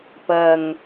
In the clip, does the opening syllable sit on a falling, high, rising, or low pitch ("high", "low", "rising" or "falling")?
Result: low